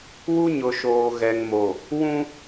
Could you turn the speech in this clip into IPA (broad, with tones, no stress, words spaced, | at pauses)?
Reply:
wu˦ɲʊ˨ ʃoː˨ ɣɛ˨ŋmo˨ | wũ˦